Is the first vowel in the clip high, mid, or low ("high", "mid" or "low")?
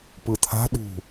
high